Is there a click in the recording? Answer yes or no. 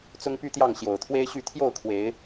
no